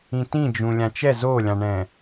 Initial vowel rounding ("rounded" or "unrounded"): unrounded